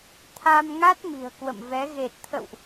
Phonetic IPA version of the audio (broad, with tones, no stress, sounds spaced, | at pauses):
t̪ʰ a˧ m ŋ a˦˥ t̚ m i̤˨˩ ə̯ k w ə̰˧˨ m v ɛ˨˦ ɣ e˨˩ t̚ t̪ʰ ə̰˧˨ w ʔ